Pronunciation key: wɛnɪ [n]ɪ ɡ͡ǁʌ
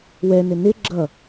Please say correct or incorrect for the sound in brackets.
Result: correct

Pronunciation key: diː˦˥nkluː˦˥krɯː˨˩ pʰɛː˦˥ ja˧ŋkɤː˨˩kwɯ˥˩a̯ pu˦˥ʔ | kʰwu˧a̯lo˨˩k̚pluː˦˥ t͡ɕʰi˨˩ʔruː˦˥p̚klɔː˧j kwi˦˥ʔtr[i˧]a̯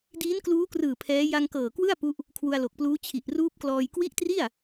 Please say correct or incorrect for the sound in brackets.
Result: incorrect: i˥˩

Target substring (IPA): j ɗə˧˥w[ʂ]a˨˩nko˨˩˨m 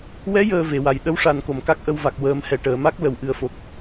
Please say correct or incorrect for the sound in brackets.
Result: correct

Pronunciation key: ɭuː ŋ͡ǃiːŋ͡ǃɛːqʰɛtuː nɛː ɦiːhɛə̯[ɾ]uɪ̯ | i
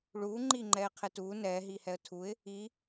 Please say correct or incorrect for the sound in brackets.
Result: incorrect: tʰ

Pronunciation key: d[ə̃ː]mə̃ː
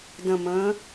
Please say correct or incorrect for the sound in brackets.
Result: incorrect: ə̃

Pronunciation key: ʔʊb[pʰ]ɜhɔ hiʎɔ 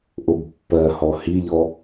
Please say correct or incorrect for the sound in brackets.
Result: incorrect: pː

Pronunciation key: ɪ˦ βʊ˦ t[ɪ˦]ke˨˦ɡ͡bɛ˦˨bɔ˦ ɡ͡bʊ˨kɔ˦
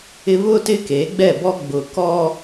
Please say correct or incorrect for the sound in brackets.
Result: correct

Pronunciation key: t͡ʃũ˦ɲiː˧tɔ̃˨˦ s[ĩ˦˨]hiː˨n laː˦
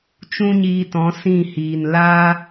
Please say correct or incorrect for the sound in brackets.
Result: correct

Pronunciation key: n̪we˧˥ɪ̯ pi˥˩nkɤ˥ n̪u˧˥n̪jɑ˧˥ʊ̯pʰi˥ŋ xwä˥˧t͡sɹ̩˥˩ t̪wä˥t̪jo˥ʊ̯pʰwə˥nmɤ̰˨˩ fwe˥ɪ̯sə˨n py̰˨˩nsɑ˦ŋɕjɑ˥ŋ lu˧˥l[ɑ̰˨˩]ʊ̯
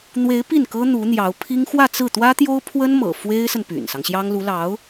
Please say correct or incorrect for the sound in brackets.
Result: incorrect: ɑ˧˥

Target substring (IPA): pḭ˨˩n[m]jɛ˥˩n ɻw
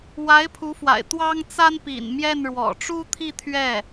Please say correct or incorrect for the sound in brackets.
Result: correct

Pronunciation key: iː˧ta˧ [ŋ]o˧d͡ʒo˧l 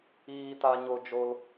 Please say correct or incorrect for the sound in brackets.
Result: incorrect: ɲ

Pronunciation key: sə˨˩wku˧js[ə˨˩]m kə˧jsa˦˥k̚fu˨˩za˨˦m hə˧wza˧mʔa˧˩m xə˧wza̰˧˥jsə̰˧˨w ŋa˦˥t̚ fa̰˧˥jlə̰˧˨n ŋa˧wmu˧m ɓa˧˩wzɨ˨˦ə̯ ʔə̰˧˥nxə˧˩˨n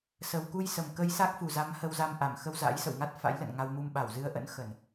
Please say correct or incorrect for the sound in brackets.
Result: correct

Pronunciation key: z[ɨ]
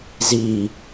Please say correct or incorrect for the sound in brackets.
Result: incorrect: i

